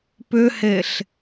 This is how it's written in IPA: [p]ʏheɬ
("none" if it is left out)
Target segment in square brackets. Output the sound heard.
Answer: p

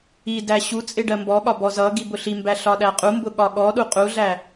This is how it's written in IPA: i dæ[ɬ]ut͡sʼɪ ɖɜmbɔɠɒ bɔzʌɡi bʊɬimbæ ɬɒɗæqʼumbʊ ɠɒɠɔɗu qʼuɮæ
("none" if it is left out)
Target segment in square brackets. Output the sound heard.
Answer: ɕ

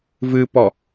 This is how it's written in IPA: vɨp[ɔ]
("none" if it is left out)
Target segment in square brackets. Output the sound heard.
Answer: ɔ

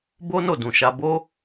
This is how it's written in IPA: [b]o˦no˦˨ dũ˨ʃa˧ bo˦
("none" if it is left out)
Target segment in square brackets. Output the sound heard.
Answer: b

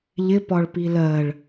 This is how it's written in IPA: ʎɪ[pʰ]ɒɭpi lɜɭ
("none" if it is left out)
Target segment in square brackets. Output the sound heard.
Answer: p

